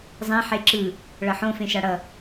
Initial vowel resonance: nasal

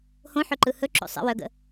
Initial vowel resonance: nasal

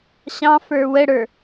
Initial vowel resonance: nasal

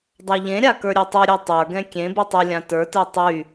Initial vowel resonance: oral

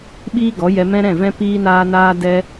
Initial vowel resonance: oral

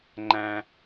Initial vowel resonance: nasal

